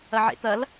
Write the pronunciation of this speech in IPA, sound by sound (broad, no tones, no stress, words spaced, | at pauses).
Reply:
ɐʕḛt̪ɐl